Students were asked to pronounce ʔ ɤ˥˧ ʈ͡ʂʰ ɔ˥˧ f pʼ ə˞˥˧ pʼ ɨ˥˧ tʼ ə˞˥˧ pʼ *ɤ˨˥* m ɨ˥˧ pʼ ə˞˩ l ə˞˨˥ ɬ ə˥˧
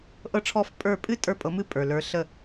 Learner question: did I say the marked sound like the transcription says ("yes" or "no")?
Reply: yes